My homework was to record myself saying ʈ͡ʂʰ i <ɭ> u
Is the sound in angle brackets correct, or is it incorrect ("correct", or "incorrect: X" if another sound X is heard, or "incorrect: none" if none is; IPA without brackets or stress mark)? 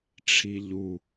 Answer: incorrect: ʎ